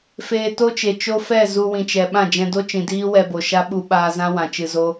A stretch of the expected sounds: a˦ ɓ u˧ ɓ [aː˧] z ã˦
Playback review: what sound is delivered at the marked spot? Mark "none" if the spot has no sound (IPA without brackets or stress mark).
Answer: aː˧